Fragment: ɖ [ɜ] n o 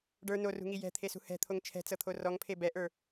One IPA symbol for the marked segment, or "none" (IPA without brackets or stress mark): ə˞